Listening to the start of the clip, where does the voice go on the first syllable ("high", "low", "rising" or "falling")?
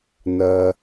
low